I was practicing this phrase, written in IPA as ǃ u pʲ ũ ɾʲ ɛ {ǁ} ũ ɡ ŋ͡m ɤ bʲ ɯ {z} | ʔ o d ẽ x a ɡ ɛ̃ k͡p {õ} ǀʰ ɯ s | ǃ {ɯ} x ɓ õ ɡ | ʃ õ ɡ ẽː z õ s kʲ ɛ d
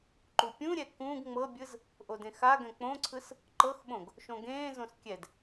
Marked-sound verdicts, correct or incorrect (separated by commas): incorrect, correct, correct, incorrect